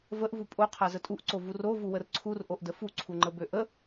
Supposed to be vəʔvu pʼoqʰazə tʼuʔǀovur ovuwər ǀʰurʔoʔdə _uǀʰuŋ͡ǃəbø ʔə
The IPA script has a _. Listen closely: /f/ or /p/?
f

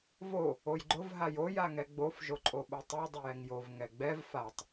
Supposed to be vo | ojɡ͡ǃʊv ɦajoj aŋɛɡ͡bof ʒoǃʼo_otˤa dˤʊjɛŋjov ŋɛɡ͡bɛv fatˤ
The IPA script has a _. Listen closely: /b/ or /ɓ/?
ɓ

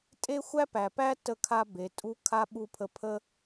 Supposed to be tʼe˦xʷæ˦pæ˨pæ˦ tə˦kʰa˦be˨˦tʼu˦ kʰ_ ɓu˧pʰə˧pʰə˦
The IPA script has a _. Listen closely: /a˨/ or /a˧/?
a˧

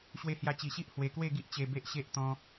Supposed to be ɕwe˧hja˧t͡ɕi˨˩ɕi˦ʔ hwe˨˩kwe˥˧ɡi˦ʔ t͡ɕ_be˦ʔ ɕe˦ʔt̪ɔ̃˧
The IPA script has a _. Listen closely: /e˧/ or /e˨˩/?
e˧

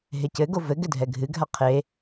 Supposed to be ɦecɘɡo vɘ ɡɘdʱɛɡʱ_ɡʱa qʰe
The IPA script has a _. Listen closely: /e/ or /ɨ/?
ɨ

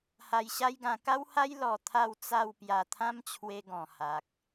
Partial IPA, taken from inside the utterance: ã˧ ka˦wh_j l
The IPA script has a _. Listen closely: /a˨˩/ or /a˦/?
a˦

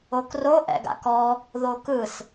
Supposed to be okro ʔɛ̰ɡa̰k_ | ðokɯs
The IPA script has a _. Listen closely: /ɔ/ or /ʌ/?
ɔ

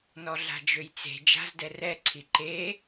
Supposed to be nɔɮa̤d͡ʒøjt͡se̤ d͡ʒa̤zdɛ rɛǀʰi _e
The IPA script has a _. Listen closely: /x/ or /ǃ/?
ǃ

